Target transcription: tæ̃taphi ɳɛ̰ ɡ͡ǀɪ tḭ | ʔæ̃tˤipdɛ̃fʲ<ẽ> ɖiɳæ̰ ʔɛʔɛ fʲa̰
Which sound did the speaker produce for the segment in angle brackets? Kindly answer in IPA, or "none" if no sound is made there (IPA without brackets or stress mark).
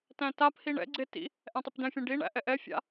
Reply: ɛ̃